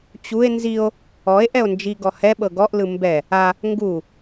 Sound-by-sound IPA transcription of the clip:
t͡ɕue̯ nzio̯ | ɔe̯ ʔɛo̯nd͡ʒi ɡɔhɛ ɓɤɡɔʔlɯ mbɛ | a | ŋɡu

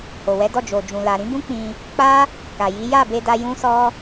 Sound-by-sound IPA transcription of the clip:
ho˨wɛ˨˦dɔ˦˨ d͡ʒo˨d͡ʒũ˨ la˨ ɾĩ˨˦bũ˦k͡pĩ˧ | k͡pa˦ | ka˨ji˨˦ ja˦˨be˧da˧ jũ˦sɔ˦

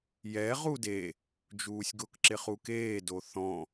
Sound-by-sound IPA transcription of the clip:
jɛ ʁude | d͡ʒuːsʲɡʊk ǁɪχukeː doθɔ̃

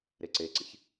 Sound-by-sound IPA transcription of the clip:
ɾeǀeǀḭç

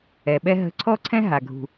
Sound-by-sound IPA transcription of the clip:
ɛ˨ɓɛ˦ ɦə̤˦˨ ǀʰɔ˦ǀʰɛ̃˦ ɦa˨ ɡʱṳ˨

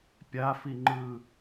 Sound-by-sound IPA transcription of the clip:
pʲafiŋ͡ǃɯː

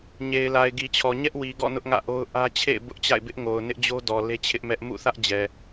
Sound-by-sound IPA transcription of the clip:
ɲe˨ɪ̯la˨ɪ̯ɡi˨t͡ɕʰɔ˨ ɲɛ˦ʔwi˨ɡɔ̰˦˨ nʊ˦ʔŋä̰˦˨ʔo˦ʊ̯ ʔä˦ t͡ɕʰḛ˦˨ɪ̯ bʊ˦ʔt͡ɕa̰˦˨ɪ̯ bɪ˦ʔŋo˨ʊ̯ nɪ˦ʔd͡ʑo˦dɔ˨ le˦t͡ɕʰɪ˦ʔmɛ˦ʔ mṵ˦˨θä˦ʔ d͡ʑɛ˨

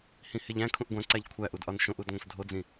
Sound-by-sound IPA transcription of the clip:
hĩheʎæ̃ kʰũʔɡʷæ̃ǀæʎ kʷʰæʔudʔɒn ʃõʔudŋʷẽf dʱod͡zĩ

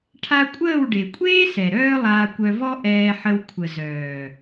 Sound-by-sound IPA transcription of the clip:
ʈʰa˧kʷʼəː˦˨w ɖe˨kʷʼeː˦sɛ˨ ɾœː˦lˠaː˧kʷœ˧vɔ˦ ʔɛː˧ ħə˧w kʷʰə˨zœː˨

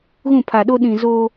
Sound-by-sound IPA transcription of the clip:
ɣũ˦˨pʰa˨ɗo˦ɗĩ˨ zo˦

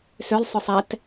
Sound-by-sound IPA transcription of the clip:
sʏlˠsˤʏsˤ ɛt

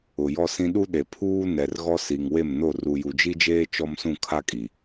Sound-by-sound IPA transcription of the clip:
ʊ˨jɔ˦sĩ˦ ɗu˦ɗe˨ pʰuː˦nɛ˨r ɣɔ˦si˨ŋ we˦˨mno˦˨ ru˨ju˨d͡ʒi˦d͡ʒeː˦ t͡ʃɔ˦msũ˦˨kʰa˦kʼi˨

